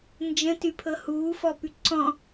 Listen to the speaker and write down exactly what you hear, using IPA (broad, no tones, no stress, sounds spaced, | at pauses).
n d͡ʒ ə̃ t y pʰ ɤ h uː f ɔ p y ǀ ɔ̃